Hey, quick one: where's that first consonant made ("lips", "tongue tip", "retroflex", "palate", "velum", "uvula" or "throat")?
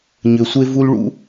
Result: palate